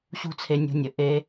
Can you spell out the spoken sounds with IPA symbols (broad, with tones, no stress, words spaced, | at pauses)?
ɕṳ˦t͡sʰe˧nʲṳ˧nʲɘ˨ ʔe˦